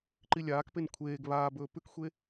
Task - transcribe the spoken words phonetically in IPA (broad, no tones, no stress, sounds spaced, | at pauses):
ǃ i lʲ aː k p e n kʷʰ eː ɡ β aː b ɵː p ʉ k xʷ e